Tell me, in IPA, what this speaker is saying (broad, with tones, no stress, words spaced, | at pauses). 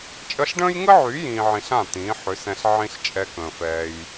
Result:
t͡ʃʼə˧ɬɖə̃ː˦jŋə˦ʕy˨˦ jĩː˧ʕĩ˧ɬã˦˨ t̪ĩː˨˦ħʏ˨˦sɛ̃˧ɬ ʕĩ˦ɬt͡ʃʼɛ˧kə̃ː˨fɛː˧j